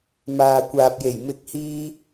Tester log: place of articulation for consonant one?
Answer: labial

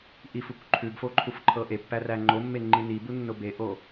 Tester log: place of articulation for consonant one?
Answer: glottal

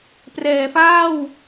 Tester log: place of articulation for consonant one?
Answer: labial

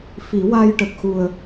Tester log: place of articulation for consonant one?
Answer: labial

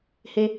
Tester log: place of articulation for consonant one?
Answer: glottal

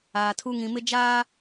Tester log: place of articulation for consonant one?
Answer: alveolar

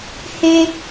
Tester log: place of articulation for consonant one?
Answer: glottal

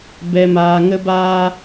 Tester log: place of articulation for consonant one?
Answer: labial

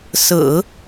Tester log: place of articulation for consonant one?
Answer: alveolar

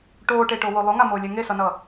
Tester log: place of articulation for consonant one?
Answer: retroflex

